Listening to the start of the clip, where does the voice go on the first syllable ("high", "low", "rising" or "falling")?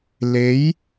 rising